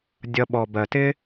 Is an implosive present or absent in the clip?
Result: present